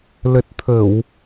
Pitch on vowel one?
low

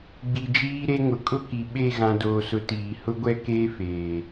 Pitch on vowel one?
low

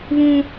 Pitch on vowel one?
high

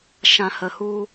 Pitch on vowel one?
low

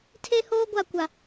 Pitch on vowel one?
high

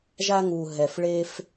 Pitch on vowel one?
high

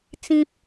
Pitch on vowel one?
high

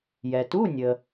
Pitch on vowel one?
low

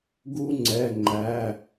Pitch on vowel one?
high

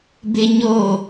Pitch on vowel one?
high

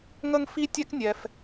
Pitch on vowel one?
high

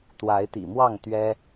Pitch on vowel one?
rising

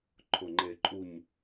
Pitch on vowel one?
low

